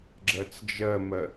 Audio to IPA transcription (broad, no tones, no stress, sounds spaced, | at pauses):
ɡ͡ǁ ɜ t͡s d͡ʒ ɜ m ɜ